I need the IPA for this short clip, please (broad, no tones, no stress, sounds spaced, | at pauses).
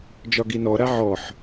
d͡ʒ ɒ ɡ i n ɔ ɾ a ʕ ɔ ħ